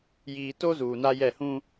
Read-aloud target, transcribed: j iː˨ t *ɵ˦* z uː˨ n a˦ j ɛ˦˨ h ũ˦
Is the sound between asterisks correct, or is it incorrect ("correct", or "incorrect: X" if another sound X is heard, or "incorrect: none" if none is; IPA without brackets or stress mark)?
incorrect: o˦